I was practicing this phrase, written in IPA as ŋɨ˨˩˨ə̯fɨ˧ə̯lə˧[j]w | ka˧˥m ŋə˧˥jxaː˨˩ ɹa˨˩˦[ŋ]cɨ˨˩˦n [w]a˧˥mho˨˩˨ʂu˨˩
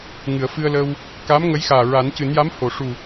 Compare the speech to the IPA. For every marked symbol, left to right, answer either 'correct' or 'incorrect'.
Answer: incorrect: none, incorrect: n, incorrect: j

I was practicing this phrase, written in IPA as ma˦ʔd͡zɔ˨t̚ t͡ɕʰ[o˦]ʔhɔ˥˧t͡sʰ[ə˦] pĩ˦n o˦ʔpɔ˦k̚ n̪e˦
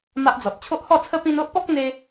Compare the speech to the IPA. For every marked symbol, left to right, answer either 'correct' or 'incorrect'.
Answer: correct, correct

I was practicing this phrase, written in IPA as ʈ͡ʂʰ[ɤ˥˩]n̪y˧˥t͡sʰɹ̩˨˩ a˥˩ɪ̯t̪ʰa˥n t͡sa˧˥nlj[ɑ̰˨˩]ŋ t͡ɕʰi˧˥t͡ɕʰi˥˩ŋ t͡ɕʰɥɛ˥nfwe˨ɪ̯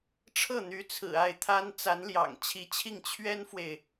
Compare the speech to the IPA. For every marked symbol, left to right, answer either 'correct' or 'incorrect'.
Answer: correct, correct

